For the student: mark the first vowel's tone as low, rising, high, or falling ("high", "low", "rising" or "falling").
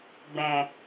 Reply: low